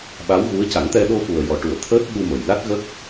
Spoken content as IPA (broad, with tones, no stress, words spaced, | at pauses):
ɓa˧˥wɣu˧˥ə̯ ca˨˩˦ŋt̪ɛ˧ ɗo˧fu˨˩ə̯ jɔ˨˩ʈu˨˩˨ə̯ t̪ʰəː˦˥t̚ɓu˧mə˨˩jla˦˥t̚ ɣə˦˥k̚